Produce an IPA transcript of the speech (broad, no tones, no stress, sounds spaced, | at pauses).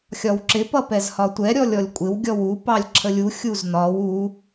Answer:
xʲ ɒ w ǁ ɪ p ʌ p ɛ z h ɒ tʷ ɛ ɾʲ ɔ lʲ ɔ lʲ kʷʼ ɪ w ɡʲ ɔ w u p ɑ lʲ ǁʰ ə lʲ u xʲ u z n ɒ w u